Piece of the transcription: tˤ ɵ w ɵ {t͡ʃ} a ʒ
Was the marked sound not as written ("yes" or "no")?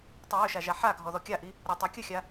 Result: yes